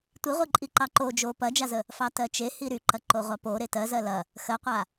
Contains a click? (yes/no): yes